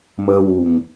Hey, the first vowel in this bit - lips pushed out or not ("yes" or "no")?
no